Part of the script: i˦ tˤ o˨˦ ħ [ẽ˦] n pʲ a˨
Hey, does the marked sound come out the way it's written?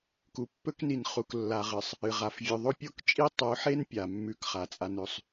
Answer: no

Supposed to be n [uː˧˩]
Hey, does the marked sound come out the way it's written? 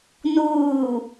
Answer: yes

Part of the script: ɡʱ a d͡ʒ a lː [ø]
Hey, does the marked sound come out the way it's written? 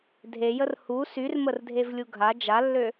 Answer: yes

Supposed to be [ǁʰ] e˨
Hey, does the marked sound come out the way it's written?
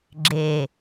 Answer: no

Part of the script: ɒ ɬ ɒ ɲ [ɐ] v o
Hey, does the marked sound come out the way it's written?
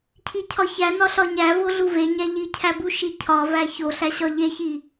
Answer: no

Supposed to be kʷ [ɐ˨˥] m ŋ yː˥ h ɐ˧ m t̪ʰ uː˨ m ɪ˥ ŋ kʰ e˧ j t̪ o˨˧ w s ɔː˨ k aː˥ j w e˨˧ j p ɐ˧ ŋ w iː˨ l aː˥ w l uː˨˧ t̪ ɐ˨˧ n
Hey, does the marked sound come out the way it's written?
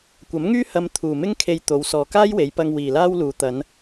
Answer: yes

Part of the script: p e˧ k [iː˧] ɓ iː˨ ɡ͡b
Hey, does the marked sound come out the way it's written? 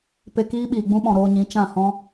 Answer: no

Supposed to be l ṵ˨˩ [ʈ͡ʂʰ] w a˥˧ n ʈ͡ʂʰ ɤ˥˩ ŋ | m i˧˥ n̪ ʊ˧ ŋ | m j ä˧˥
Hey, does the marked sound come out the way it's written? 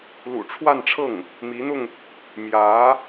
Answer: yes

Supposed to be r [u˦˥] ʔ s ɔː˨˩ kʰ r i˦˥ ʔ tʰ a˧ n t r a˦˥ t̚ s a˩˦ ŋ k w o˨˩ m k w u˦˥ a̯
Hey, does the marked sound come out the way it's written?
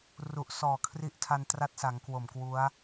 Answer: no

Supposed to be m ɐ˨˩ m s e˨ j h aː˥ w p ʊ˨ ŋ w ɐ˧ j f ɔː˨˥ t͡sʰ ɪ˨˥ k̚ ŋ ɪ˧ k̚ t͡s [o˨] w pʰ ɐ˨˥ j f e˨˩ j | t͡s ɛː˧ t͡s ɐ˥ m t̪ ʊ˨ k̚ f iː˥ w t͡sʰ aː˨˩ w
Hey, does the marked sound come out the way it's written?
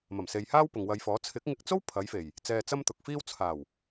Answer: no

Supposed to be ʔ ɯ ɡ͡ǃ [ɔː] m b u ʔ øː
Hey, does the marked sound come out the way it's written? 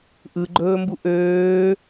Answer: no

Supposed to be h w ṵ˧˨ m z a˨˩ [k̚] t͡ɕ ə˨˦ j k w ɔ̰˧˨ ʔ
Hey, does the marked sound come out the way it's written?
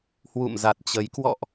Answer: no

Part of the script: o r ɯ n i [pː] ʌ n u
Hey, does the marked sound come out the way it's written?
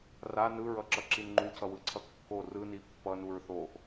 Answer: yes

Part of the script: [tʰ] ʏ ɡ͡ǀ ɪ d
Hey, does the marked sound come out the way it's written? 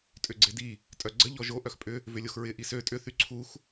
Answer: no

